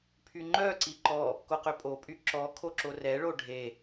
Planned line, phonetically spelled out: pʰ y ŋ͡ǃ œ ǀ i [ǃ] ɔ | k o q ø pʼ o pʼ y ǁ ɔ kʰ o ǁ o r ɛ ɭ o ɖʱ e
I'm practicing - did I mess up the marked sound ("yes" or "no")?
no